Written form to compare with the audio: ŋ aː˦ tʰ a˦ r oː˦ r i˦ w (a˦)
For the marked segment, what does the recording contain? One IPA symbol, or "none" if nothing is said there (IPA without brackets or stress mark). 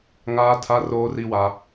a˦